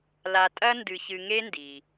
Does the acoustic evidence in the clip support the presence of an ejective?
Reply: yes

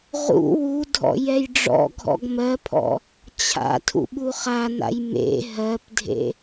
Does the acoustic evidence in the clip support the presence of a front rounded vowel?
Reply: no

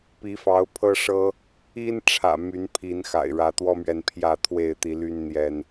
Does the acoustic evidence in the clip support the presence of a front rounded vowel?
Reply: yes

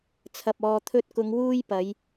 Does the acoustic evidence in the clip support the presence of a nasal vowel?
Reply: no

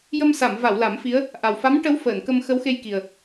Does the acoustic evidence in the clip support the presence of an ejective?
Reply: no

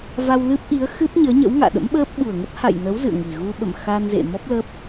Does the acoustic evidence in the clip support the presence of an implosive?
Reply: yes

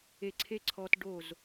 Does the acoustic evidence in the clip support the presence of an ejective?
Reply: no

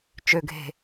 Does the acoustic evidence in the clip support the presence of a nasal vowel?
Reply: no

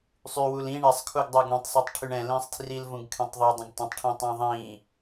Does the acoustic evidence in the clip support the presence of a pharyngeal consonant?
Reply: no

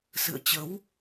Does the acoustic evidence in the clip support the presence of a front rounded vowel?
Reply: no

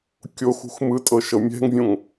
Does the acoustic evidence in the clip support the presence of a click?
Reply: no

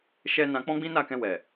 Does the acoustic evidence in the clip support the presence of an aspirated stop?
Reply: no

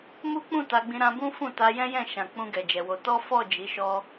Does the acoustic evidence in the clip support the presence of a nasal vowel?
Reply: yes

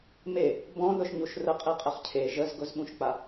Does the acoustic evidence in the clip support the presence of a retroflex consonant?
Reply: no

